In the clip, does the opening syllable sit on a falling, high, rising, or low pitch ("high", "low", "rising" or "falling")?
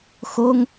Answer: high